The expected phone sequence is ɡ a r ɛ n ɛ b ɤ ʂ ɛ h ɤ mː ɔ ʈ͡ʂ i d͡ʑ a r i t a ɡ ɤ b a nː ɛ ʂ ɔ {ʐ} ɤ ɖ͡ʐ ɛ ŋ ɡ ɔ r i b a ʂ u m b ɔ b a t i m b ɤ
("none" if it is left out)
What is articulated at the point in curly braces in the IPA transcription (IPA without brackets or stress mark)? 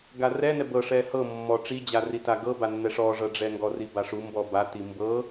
ʐ